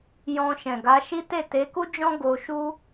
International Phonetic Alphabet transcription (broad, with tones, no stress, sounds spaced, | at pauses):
j ɔ̃˧ ʃ ɛ̃˨ ɡ a˨˦ ʃ i˦ t e˦˨ t e˨˦ k u˦ d͡ʒ ɔ̃˦ ɡ o˧ ʃ u˦